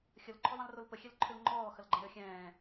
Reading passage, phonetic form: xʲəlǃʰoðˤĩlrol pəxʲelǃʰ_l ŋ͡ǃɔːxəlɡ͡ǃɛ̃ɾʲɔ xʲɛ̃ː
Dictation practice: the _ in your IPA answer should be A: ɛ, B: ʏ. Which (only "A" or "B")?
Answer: B